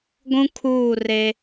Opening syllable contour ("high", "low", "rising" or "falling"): high